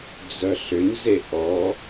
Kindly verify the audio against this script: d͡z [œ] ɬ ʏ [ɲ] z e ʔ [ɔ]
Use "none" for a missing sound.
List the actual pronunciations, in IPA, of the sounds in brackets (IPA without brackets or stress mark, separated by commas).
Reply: œ, ɲ, ɔ